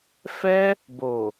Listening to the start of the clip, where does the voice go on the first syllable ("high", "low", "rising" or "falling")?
high